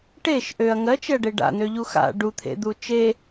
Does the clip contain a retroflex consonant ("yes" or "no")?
yes